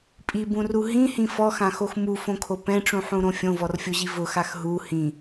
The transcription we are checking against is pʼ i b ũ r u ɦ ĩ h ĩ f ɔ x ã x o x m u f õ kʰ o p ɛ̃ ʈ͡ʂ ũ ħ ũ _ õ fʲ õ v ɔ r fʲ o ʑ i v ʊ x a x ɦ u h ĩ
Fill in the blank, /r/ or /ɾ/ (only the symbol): ɾ